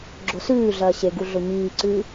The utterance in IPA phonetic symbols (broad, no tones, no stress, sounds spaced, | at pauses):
ɡ͡ǁ o s ʉː ɮ ɐː ɕ e ɡ u ɮ o ɲ iː ǀ ʉː